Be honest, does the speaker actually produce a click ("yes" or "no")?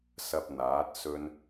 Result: no